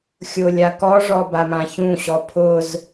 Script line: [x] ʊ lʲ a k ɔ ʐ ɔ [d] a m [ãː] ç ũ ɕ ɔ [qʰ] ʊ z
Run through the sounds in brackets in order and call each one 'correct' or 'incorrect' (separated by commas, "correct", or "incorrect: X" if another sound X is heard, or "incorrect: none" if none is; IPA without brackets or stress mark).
incorrect: xʲ, incorrect: b, incorrect: ã, incorrect: pʰ